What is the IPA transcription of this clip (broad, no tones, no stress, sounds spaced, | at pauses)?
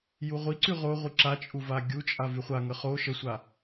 j u ʁʷ i ǀ y ʁ o ʁʷ i ǁ a t͡ʃʼ u v a ɡʲ u t͡ʃʼ a v y χʷ a ŋ ə χ o ʃ ə sʷ a